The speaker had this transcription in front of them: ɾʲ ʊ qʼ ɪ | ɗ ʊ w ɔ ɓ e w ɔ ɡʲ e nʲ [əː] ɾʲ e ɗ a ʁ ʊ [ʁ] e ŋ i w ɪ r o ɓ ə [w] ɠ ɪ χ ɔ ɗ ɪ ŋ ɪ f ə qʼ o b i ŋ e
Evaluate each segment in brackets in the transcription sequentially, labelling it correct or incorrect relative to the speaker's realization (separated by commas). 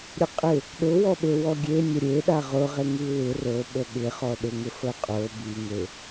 incorrect, correct, incorrect